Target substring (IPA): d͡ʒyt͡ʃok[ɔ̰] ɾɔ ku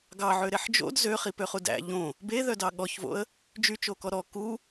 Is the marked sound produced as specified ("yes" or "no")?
no